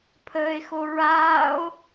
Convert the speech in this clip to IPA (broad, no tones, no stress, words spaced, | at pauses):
pʰəːe̯xoɹaːo̯